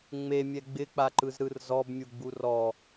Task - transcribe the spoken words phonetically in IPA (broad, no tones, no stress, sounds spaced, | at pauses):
ŋ͡m e mʲ ɛ ɡ͡b ɪ k͡p a ǃ ɯ z ɾ ɯ r z ɔ b mʲ u ɡ͡b u r ɔ